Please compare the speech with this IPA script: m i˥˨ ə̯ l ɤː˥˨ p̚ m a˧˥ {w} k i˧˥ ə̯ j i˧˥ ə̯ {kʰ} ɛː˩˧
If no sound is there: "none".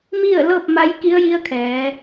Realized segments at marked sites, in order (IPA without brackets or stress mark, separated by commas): j, kʰ